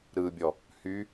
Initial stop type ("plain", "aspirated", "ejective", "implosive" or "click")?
plain